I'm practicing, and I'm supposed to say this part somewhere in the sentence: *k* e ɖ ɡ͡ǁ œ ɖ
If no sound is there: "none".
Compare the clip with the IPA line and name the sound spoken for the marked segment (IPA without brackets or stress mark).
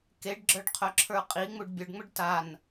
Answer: k